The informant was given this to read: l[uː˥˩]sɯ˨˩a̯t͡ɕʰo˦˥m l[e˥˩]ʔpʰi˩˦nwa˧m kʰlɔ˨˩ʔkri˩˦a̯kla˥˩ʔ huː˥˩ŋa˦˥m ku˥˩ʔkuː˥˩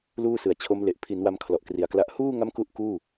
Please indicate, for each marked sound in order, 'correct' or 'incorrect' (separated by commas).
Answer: correct, incorrect